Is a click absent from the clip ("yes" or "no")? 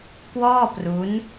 yes